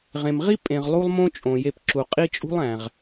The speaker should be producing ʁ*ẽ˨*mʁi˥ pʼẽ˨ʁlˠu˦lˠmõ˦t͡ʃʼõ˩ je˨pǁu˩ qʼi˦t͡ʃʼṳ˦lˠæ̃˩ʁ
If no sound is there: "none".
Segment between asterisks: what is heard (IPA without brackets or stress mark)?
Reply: ẽ˨